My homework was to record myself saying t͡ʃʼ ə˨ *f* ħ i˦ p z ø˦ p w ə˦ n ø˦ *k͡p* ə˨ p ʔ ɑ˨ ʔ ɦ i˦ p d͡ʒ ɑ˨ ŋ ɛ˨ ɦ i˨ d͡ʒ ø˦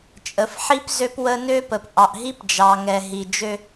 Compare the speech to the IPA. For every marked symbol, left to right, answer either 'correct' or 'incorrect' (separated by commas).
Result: correct, incorrect